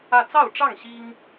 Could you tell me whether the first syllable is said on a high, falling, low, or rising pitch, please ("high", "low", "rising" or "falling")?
falling